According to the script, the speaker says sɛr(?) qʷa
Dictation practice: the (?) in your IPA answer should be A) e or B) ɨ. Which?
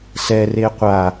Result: A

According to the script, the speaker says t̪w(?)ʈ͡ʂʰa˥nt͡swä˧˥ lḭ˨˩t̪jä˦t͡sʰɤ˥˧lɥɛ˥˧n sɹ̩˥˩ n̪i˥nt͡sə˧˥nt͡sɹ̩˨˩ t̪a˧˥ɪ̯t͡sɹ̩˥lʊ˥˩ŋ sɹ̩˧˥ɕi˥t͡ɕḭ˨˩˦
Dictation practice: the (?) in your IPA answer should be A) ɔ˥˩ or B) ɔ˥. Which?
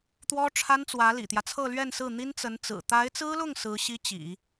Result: B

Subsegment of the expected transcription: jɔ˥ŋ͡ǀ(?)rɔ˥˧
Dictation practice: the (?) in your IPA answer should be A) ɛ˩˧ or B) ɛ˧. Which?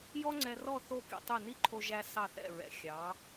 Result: B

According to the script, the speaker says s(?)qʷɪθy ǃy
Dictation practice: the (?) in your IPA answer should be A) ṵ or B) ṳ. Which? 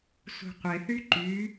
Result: B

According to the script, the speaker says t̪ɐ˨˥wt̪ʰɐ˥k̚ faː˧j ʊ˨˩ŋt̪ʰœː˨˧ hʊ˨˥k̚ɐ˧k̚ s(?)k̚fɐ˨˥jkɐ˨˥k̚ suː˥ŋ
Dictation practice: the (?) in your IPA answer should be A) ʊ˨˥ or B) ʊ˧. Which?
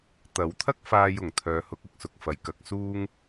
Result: A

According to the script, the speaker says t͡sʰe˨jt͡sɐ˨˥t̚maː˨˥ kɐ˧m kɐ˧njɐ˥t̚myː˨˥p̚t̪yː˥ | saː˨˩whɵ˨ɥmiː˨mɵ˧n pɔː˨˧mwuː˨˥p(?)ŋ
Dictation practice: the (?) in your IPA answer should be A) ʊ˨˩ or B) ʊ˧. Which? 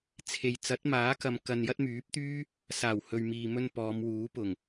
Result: A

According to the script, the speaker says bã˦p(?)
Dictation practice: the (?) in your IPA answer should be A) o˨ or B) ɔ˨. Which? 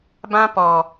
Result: B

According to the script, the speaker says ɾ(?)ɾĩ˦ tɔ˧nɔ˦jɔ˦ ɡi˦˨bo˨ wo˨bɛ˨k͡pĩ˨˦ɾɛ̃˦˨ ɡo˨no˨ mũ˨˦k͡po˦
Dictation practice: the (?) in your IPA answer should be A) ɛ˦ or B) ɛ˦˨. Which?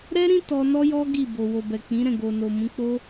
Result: A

